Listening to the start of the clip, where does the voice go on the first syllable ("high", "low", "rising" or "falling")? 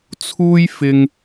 high